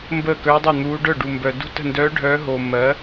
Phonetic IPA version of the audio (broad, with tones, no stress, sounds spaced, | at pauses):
m b əː˥˩ k œː˧˥ dˤ œ˥˩ n̪ uː˧˥ ɖ œ˥˩ ɖ u˨ m b œ˨ d ṳ˥˩ t ə̤˥˩ n d œː˧˥ ɖʱ œː˧˥ ɦ oː˨ mː ɜ˩˥